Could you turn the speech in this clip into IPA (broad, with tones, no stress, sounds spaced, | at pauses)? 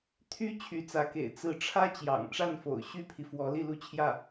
t̪ʰ y˥ t͡ɕʰ y˧˥ t͡s ä˧˥ k ḛ˨˩ ɪ̯ t͡s ɹ̩˧˥ ʈ͡ʂʰ ä˥ t͡ɕ j ɑ̰˨˩ ŋ ʈ͡ʂ a˥˩ n f o̰˨˩ ʊ̯ ɕ y˥ pʰ i˨ f w ɔ˧˥ l i˥˧ l u˥˧ t͡ɕʰ j ä˥˩